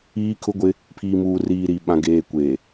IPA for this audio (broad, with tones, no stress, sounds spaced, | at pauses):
iː˦ kʰ ʊ˦ ɡʷ ɪ˦ | pʰ iː˨ m uː˨ r iː˨ ɾ i˨ ɓ ã˨ ɡ eː˨ kʷ eː˨